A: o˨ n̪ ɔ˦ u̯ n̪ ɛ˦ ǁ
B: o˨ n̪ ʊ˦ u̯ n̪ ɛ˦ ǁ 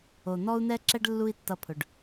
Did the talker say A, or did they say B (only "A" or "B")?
A